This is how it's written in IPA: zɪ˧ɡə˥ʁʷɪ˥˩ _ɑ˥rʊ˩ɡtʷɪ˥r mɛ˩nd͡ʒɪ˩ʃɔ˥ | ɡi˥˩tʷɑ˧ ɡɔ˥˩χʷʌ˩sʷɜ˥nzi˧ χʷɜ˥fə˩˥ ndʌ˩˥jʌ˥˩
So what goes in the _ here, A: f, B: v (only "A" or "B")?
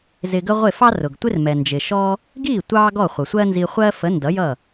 A